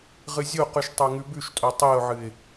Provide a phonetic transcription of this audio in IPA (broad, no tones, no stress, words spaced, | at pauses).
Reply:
ʁɨzʲoqʉʃ tˤoŋʉbʉʃtʼo tˤiʊ̯ʕɨɪ̯